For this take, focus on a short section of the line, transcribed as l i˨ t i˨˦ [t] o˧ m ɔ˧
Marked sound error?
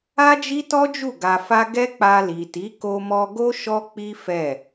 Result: yes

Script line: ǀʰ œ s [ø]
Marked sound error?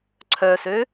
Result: no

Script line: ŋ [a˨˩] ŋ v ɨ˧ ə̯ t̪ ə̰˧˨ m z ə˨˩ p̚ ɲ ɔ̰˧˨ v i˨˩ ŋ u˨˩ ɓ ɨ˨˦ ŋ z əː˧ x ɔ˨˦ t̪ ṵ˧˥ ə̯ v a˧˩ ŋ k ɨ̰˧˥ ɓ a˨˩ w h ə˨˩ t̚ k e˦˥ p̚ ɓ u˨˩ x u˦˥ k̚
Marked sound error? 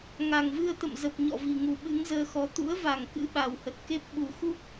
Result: no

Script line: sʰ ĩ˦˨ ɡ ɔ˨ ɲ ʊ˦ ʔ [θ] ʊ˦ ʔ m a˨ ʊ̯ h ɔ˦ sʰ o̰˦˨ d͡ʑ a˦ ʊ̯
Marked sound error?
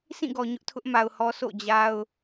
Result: yes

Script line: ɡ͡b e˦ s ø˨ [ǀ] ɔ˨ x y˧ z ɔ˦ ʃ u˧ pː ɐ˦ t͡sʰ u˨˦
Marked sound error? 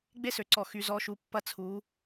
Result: no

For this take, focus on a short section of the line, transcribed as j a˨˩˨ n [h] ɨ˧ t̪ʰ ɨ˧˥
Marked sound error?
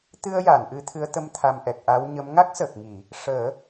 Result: yes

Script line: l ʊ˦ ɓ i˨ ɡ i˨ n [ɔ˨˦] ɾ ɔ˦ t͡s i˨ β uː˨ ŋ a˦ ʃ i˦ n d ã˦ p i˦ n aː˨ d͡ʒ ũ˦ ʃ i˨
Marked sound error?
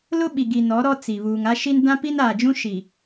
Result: no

